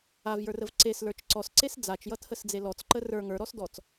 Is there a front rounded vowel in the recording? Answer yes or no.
no